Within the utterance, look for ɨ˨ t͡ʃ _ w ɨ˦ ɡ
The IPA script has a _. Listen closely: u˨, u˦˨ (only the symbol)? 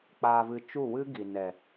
u˦˨